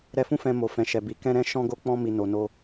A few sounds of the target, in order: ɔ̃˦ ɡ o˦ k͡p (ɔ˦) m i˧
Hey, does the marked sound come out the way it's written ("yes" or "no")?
no